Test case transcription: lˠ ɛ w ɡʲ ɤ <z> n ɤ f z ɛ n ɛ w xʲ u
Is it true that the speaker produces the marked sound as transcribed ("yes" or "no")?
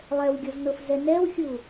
yes